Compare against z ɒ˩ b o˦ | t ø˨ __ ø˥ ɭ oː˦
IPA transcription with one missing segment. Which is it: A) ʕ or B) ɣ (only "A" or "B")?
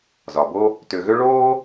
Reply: B